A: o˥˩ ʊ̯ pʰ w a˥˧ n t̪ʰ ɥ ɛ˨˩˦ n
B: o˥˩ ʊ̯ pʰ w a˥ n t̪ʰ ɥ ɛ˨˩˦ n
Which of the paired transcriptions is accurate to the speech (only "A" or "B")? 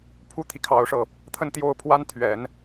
B